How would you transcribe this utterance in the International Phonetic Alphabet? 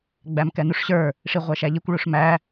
ɡ͡bæmkɛnuʂɕə˞ | ʂiʁʷæʃæʎikʷ ɭuʂmæ

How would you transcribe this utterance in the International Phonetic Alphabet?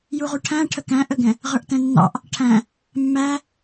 juʁuʈʰæ̃ ʈʰəkæ̃ʔəɡɛ̃ | ʁə˞ʔtɛ̃nːɑ̰ʔ | ʈʰæ̃ | mːæ

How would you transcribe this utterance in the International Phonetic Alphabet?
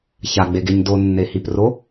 çaɡ͡beɡeɲ donːehipro

